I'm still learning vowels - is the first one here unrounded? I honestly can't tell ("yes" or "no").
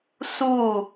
no